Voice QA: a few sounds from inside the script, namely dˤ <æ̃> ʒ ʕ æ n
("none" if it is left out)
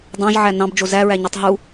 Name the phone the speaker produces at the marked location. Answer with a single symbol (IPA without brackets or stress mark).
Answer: ã